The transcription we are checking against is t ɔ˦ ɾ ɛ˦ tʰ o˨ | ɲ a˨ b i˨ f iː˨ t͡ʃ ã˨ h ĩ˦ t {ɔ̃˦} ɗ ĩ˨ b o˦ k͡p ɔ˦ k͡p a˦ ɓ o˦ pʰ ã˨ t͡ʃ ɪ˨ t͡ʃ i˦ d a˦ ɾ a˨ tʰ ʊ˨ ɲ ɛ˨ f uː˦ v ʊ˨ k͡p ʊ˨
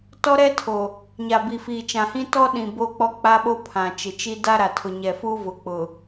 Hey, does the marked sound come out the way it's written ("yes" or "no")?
no